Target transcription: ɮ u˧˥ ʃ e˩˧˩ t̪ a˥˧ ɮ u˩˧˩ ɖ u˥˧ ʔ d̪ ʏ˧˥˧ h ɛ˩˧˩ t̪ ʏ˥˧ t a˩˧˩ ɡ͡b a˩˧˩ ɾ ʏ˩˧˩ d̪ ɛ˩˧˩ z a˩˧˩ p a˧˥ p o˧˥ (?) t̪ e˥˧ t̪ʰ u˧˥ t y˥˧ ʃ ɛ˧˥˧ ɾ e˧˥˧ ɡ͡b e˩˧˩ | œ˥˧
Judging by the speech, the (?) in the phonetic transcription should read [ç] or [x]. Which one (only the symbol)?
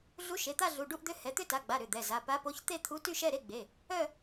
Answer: ç